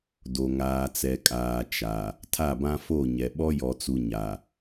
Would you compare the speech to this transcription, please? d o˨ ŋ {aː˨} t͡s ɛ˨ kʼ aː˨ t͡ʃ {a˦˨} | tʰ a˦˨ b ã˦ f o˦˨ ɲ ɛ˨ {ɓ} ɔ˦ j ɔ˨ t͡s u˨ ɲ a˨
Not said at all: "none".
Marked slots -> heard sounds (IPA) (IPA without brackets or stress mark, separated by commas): aː˨, a˨, ɓ